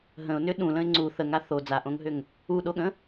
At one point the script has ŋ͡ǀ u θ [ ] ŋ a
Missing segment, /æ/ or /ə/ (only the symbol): ə